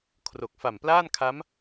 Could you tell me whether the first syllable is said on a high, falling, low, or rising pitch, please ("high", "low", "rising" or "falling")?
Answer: low